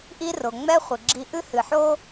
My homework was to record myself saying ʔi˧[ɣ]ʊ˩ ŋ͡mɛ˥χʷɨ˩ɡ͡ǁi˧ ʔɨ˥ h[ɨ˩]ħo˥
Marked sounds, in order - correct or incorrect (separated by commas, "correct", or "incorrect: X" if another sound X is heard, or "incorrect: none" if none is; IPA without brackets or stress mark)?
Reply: incorrect: r, correct